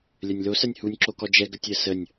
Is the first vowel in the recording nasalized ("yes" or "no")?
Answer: no